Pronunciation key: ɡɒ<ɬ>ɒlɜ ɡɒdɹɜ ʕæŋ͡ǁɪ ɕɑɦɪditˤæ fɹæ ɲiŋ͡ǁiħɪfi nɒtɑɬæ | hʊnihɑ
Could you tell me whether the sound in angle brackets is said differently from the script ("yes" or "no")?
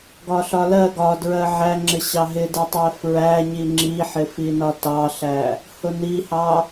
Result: no